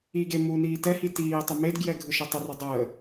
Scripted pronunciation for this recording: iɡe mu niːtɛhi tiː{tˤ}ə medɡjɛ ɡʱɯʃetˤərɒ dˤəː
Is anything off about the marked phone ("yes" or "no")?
no